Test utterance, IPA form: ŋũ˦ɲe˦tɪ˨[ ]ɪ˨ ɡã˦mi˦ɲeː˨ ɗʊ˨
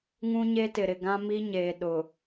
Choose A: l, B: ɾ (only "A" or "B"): B